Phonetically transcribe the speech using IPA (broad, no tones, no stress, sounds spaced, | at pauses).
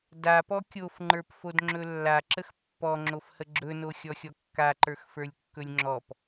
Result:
d a p ɔ kʲ o f ŋ͡ǃ ə˞ p f o d ŋ͡ǁ ɵ lː a ǁ ə x pː ɔ ŋ͡ǁ o f h ə ɡ͡ǁ ɵ n o xʲ ɔ xʲ ɔ kː a ǃ ə˞ x f ə˞ lʲ kː ɵ lʲ ŋ͡ǁ ɔ p